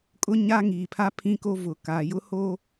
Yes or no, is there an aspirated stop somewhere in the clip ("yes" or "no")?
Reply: yes